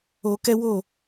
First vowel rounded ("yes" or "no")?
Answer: yes